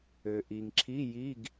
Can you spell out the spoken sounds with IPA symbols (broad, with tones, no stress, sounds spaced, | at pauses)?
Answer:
ø˩ ʔ i˩ ŋ ǁʰ i˧˥˧ j i˧˥˧ ɡ